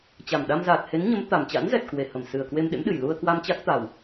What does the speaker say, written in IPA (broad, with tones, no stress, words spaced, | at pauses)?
t͡ɕa˨˩mɗa˧mzaː˨˩t̚ he˨˦nɲə˨˦m t̪a˨˩mt͡ɕa̰˧˥nzɛ˨˩t̚ kwe˧˩hə˧˩m sɨ˨˩ə̯kwe˧mɗḛ˧˥mɗɨ˨˩j lu˧ə̯kwa˧mt͡ɕa˦˥k̚t̪a˨˩w